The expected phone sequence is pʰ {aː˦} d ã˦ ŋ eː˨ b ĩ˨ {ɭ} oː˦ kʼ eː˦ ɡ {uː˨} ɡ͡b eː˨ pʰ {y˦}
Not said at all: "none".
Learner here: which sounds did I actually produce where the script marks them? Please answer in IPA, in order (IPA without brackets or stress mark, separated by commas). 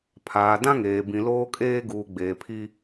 aː˨, l, uː˨, i˦